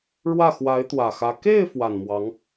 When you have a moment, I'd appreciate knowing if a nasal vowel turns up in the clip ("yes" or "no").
no